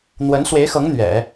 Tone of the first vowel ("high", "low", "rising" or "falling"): rising